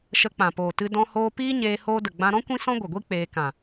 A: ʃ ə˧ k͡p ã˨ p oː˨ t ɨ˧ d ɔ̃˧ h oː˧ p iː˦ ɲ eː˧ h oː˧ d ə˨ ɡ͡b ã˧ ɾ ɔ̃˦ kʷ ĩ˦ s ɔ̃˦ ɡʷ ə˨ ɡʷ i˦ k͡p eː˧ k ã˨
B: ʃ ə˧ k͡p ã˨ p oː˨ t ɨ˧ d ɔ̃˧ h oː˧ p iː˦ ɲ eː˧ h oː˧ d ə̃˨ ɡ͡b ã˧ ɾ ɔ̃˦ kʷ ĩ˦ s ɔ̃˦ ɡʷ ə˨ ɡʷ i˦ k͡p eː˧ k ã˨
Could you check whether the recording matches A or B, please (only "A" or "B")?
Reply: A